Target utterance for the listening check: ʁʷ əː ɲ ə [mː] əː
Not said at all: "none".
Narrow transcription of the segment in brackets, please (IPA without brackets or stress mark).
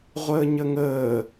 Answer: ŋ